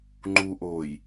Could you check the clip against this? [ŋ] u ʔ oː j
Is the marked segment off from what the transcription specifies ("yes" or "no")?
yes